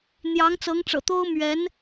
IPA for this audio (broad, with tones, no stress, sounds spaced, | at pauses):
n̪ j ɑ˧˥ ŋ t͡s ɤ˧˥ ŋ ʈ͡ʂ ɤ̰˨˩ t̪ o˥ ʊ̯ m ɥ ɛ˧˥ n